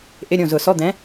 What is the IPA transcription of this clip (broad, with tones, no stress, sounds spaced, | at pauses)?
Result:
ʔ ɪ˧˥˧ ɾʲ õ˥˩ z ʊ˨˩˦ s ɔ˧˥˧ d̪ ɛ̃˨˥